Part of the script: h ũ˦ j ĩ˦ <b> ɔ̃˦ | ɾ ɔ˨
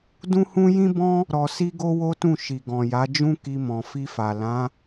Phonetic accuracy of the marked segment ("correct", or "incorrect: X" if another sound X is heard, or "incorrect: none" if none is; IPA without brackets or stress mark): correct